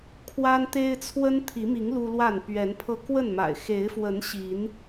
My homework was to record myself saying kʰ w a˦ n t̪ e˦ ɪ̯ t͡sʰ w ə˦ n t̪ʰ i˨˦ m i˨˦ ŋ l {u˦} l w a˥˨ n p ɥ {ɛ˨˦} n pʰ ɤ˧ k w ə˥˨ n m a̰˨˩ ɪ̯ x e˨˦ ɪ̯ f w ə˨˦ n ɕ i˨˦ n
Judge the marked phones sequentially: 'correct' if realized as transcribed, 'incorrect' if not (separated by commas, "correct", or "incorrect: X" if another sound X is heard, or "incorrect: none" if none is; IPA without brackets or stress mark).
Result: correct, correct